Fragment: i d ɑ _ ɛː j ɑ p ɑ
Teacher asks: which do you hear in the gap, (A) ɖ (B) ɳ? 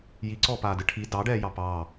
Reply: A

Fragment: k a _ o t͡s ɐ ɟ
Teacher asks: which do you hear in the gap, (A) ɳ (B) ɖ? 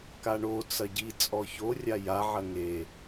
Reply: A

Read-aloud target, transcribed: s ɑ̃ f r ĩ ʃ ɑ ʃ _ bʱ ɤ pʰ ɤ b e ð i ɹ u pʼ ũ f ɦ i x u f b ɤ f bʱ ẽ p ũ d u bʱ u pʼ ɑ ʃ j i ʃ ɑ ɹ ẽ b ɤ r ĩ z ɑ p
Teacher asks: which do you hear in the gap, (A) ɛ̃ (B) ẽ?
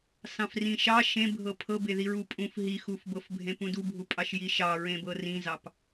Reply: B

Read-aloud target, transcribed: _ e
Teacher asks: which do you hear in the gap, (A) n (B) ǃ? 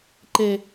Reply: B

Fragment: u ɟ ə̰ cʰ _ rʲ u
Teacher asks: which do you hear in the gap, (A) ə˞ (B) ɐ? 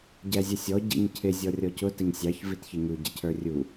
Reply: A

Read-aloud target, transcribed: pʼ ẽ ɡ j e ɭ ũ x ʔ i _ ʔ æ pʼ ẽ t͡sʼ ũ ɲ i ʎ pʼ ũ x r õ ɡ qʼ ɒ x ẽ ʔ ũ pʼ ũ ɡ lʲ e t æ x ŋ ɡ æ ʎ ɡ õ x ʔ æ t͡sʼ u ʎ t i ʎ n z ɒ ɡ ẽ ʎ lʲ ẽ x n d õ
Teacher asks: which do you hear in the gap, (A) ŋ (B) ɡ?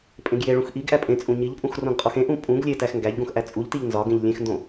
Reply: B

